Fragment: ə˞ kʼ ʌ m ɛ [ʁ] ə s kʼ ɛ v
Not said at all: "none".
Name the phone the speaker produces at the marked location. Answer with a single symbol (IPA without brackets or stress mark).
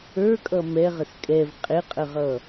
ʁ